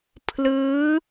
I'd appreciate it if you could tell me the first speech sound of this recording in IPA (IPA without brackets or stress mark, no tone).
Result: pʰ